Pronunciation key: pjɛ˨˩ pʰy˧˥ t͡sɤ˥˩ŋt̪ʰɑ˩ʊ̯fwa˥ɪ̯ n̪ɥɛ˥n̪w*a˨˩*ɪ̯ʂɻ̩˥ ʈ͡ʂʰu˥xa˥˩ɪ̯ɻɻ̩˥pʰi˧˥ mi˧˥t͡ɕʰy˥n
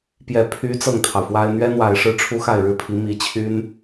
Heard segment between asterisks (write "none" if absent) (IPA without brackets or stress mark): a˨˩